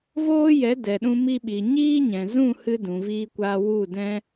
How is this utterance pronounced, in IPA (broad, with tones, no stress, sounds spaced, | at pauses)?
v oː˦ j ɛ˨˦ d ɛ˨ ɗ ũ˧ m i˧ ɓ i˨ ɲ iː˦ ɲ ɛ̃˨ z ũ˦˨ h ɨ˧ d ũ˨ v iː˧ kʷ aː˧ w u˦˨ d ɛ̃˦